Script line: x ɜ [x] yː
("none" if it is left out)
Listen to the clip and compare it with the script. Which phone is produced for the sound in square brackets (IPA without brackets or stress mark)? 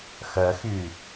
x